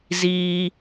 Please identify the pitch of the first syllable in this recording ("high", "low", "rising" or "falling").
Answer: high